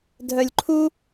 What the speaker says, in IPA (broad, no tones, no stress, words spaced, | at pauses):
dʱœlʲǃʰu